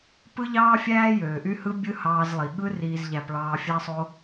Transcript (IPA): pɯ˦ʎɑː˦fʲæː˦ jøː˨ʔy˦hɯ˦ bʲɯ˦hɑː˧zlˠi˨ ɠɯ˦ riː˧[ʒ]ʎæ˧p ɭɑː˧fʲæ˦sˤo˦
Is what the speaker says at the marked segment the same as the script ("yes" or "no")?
no